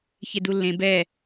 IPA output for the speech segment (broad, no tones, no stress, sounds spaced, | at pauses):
ç e d u lː ẽ b ɛ